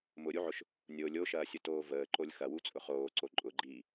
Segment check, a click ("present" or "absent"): present